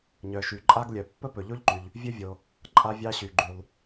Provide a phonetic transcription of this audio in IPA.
ɲœ˩ʃy˩ ǃʼa˥ɡlʲœ˩ pːə˥pɵ˩ʎo˥ʎǃy˩ʎ | vʲɵ˥vʲo˩ | ǃʼa˥vʲɑ˥ɕy˩ ɡ͡ǃy˩lˠ

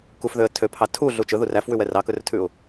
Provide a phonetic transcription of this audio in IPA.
kufðøə̯ tʰøpʰɑ tʰuɮu t͡ʃɵður æfwʉwɛ rɑkɵrtʰʉʊ̯

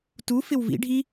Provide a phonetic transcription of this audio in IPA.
tu fɪwvḭ ɖʱi

